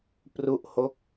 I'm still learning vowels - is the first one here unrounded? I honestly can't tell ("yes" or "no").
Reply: no